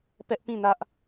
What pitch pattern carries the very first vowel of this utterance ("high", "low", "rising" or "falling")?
high